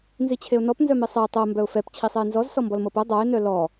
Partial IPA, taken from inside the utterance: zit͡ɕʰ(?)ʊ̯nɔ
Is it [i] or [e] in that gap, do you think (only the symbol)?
e